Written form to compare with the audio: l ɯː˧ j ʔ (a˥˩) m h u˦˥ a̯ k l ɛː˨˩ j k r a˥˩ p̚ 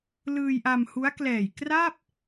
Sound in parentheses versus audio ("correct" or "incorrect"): incorrect